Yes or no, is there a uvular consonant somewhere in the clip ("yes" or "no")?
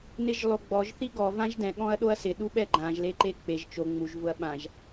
no